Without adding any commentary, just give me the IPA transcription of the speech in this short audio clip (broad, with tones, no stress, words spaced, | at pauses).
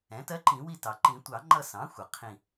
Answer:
ɛ̃˩˥tɜ˧˥ ǃĩ˨˩˦wi˦˨ tɑ˩ǃĩ˨˩˦tʷɑ˨˩˦ŋ͡ǃʌ˦˨ sɑ̃˩˥xʷʌ˩ qʰĩ˦˨